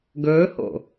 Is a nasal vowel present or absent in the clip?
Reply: absent